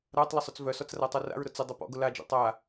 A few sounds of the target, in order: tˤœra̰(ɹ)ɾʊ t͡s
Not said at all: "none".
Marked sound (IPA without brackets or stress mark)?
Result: ɹ